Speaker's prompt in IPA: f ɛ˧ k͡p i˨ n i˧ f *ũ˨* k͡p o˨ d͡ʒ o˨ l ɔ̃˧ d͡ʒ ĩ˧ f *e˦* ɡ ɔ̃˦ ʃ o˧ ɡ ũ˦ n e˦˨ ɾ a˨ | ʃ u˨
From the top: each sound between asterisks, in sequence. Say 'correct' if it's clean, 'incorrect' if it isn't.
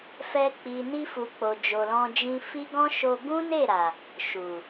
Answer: incorrect: u˨, incorrect: i˦

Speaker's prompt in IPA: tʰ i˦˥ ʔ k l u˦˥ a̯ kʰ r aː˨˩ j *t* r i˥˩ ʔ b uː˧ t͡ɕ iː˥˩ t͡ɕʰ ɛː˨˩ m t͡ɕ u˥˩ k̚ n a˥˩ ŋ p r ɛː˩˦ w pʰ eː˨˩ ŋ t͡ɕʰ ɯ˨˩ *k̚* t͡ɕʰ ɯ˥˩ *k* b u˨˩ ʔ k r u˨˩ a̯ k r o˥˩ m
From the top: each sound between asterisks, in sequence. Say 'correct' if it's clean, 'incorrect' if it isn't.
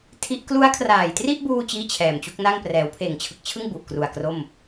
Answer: correct, correct, incorrect: ŋ

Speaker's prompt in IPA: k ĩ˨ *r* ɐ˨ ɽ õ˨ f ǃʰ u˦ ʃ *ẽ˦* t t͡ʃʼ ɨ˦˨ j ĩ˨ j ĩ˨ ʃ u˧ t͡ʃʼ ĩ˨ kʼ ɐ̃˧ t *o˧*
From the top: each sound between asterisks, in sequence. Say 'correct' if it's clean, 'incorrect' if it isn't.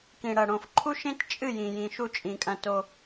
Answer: incorrect: ɽ, correct, correct

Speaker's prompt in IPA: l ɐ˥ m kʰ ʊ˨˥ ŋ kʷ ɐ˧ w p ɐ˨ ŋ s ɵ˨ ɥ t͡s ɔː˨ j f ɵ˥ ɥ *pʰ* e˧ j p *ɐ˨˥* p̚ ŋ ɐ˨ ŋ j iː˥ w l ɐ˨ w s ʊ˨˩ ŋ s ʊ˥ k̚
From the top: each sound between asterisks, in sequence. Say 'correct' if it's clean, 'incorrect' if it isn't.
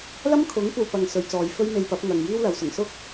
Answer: incorrect: m, correct

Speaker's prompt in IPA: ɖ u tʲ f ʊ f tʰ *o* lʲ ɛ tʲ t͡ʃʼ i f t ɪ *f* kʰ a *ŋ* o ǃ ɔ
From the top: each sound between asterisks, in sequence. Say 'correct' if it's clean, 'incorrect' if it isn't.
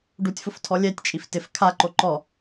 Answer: incorrect: ɔ, correct, incorrect: ǃ

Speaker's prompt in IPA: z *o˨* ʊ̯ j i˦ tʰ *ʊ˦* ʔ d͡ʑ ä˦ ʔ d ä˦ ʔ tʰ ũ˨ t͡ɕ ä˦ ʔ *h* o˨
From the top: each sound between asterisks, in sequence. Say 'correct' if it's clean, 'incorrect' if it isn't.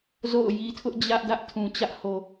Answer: incorrect: o̰˦˨, correct, correct

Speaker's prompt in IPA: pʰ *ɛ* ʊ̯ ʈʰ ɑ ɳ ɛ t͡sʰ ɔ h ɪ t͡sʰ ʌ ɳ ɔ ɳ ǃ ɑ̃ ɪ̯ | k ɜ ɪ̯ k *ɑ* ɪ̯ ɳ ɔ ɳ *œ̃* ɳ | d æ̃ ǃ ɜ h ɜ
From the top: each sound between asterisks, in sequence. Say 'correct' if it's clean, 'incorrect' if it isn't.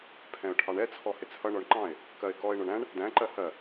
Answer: incorrect: ɛ̃, incorrect: ɔ, incorrect: æ̃

